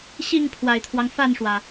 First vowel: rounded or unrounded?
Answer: unrounded